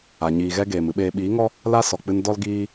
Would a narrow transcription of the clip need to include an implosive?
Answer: yes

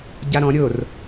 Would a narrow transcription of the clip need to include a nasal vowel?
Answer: yes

